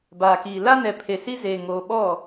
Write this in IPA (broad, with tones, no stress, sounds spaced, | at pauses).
b aː˨ k iː˨ l a˦ n ɛ˨ pʰ e˨ s i˦ z eː˨ ŋ oː˨ ɓ ɔ˦˨